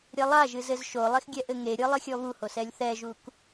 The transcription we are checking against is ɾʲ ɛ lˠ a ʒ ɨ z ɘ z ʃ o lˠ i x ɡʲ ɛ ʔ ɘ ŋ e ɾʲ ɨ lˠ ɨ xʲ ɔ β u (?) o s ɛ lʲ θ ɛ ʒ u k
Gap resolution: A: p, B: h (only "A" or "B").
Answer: B